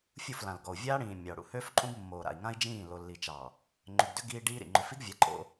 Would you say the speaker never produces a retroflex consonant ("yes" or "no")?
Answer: no